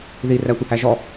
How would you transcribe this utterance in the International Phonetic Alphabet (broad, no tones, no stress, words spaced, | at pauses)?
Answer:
ði rætʷɯhæʒɔ